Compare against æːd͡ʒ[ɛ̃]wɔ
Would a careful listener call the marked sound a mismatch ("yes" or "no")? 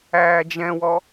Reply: no